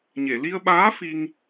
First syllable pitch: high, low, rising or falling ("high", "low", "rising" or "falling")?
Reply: low